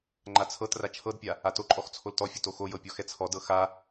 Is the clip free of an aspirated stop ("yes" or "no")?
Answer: no